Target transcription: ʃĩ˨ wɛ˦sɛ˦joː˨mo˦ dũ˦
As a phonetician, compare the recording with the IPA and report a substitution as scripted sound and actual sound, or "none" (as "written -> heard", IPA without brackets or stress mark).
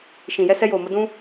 w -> j